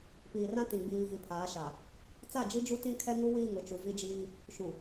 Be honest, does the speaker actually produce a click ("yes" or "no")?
no